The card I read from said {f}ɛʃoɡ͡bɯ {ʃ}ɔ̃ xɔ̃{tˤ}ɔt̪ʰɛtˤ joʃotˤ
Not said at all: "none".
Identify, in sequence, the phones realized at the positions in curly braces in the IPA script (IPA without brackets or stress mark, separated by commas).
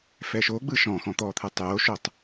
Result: f, ʃ, t̪